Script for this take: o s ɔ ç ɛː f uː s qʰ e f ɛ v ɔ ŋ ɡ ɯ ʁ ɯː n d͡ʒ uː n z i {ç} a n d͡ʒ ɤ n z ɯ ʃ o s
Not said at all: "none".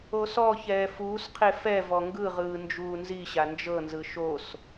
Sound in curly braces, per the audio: ɕ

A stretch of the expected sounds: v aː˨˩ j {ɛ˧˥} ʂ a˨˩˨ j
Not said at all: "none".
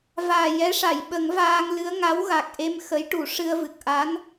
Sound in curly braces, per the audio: ɛ˧˥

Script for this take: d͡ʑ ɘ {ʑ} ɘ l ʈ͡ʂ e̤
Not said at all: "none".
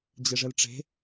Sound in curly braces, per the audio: ʐ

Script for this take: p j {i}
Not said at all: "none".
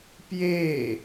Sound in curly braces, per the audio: e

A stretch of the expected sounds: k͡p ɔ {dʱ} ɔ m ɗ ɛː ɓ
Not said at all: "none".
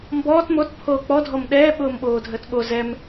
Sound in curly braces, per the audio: dʱ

